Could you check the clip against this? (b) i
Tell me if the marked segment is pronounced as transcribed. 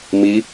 no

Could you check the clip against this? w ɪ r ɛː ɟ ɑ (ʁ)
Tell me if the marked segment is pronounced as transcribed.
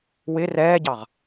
yes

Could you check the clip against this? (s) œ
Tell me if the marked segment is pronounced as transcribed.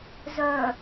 no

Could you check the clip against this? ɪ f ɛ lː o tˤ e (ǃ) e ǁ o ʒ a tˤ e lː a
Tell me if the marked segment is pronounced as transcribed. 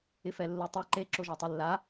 yes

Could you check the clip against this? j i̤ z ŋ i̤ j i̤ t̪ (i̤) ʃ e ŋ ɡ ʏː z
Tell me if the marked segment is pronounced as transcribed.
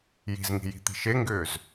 yes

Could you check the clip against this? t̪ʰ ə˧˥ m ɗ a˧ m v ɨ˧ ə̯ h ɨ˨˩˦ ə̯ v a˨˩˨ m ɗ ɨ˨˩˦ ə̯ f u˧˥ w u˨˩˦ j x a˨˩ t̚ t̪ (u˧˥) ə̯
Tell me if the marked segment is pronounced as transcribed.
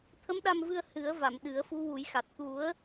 no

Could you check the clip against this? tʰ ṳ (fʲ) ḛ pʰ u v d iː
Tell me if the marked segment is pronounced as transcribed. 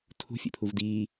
yes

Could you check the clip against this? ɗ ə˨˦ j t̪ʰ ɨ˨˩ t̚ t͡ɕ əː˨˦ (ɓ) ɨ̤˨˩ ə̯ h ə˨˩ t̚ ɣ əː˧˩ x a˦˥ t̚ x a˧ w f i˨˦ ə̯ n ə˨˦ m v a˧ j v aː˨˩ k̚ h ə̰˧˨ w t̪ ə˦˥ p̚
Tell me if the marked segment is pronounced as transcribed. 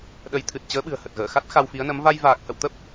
yes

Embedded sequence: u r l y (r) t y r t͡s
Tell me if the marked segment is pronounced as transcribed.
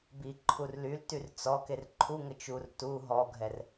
no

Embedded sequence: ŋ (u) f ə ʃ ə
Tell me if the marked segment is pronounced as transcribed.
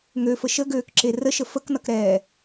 no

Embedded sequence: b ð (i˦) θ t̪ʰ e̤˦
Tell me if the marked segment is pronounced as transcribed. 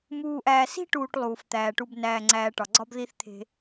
yes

